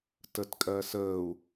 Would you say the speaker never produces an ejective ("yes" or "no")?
no